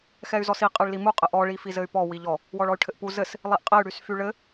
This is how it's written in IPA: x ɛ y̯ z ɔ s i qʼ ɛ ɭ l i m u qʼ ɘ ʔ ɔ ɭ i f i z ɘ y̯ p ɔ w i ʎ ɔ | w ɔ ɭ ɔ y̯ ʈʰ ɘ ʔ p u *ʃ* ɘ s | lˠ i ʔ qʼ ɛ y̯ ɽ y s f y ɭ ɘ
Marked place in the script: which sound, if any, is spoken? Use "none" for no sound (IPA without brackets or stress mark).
z